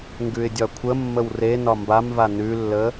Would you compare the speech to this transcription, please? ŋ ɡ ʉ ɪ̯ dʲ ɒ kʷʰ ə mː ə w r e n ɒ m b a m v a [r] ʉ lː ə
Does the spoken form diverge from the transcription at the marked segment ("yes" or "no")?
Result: yes